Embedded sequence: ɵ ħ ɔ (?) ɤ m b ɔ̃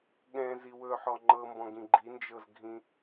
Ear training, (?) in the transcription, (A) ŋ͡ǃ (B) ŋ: A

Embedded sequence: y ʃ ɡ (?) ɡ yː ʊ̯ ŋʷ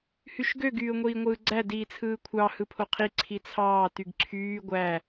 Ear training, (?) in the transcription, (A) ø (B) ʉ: A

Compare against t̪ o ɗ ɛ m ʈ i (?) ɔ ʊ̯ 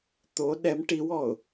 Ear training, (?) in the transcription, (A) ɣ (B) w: B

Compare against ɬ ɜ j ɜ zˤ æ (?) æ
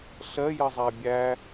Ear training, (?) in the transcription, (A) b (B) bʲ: B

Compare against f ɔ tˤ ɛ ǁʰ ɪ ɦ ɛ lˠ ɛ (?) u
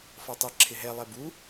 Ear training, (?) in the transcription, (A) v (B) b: B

